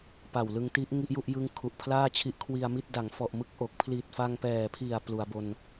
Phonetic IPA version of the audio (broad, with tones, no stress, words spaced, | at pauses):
pa˨˩wlɯ˧ŋti˦˥ʔ ŋi˥˩ʔju˥˩ʔ jɯ˦˥ŋ kʰu˨˩ʔpʰlaː˥˩t͡ɕʰi˦˥ʔ kʰwi˧a̯mi˥˩t̚ da˩˦ŋfɔ˨˩ʔ mɯ˥˩k̚ʔo˨˩k̚ pʰli˨˩t̚fa˧ŋpɛː˨˩pʰi˨˩a̯ plu˩˦a̯bo˧n